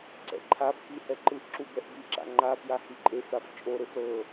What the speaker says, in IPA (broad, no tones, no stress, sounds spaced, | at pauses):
ǀ ɛ̰ ǃʰ a f k i h ɛ ǃ ɯ ʔ ǁ u b ɛ ʔ b i ǁ a̰ ŋ͡ǃ a f j a h i ǃʼ e f ɾ a f t͡ʃʼ o ɾ e f ɾ ɤ